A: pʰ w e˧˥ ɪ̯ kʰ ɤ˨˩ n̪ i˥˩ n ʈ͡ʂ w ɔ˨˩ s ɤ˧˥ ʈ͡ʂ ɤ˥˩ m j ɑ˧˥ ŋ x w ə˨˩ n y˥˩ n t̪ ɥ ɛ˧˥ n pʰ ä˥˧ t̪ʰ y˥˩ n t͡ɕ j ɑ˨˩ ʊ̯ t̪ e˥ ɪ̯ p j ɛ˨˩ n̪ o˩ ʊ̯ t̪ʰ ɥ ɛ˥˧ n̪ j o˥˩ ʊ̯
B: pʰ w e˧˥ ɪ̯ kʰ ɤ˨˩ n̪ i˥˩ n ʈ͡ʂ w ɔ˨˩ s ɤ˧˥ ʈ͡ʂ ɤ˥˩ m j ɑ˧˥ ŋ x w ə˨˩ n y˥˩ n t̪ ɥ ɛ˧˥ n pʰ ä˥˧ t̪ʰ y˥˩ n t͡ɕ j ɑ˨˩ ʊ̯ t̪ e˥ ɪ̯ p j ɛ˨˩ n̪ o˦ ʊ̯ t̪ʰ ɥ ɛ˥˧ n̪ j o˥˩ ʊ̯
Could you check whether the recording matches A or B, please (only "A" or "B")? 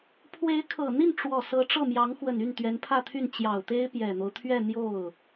B